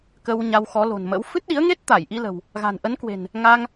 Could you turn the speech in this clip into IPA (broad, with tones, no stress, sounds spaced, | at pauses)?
k ə˧ w ɲ a˧ w x ɔ˨˦ l o̤˨˩ n m ə̰˧˥ w f ɨ˦˥ t̚ ɗ i˨˦ ə̯ ŋ e˦˥ t̚ t̪ a˧˩ j ʔ i˧ l ə̤˨˩ w | ɣ a̤˨˩ n ʔ ə˨˦ n k w e̤˨˩ n | ŋ a˧ ŋ